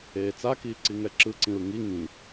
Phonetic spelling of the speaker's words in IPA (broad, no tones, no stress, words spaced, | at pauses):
eːt͡sakiː ǀiŋɛǁɯǀĩɹ ŋi ŋĩ